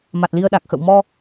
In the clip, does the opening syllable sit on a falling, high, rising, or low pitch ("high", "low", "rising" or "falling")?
low